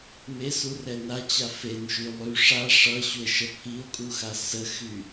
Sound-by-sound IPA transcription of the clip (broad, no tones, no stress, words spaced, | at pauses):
mesurɛ nat͡ɕa fenʃy lˠy ʂa ʂʌɕue̯ʃə pʰio̯kʼuxa səxy